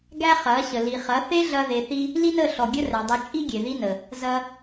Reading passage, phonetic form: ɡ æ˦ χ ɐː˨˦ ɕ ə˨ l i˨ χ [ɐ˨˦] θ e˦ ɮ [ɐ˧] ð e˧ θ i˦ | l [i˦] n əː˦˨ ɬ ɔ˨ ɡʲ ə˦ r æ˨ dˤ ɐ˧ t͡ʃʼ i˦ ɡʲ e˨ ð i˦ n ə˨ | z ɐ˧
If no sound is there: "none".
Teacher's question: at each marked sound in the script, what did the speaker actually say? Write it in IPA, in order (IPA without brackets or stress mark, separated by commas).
ɐ˨˦, ɐ˧, i˦